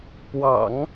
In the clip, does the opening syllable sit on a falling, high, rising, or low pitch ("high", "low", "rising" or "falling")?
low